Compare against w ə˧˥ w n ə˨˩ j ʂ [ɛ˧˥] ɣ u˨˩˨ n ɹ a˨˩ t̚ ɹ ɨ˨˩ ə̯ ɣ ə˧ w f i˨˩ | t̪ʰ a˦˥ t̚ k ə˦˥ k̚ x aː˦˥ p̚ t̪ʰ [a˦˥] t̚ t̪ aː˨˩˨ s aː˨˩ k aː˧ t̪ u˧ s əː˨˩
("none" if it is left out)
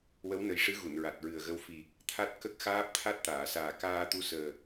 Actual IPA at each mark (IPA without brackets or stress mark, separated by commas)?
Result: ɨ˧˥, a˦˥